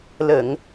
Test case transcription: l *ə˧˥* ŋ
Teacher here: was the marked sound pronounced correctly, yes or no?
no